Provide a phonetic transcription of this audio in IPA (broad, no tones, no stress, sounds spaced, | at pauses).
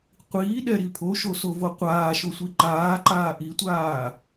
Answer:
qʷ iː ɗ ɛ ɾ i pʰ o ʃ o s o v o qʷ aː ʃ o sʷ i ǃ aː ǃ aː ʔ i tʷ aː